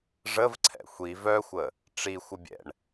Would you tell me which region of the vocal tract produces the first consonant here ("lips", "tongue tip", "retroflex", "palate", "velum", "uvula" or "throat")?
retroflex